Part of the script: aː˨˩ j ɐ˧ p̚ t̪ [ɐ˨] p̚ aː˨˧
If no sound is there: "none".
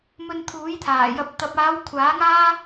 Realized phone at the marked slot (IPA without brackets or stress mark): ɐ˨